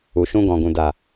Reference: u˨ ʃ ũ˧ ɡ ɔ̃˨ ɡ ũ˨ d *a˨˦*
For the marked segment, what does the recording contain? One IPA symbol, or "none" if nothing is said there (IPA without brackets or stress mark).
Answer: a˨